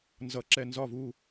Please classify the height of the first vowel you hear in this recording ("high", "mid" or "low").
mid